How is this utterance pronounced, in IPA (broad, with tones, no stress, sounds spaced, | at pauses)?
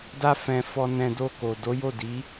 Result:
d a˦ f ɛ̃˧ f ɔ˧ n ɛ̃˧ d o˧ k o˨ d o˨˦ j o˦˨ d i˨˦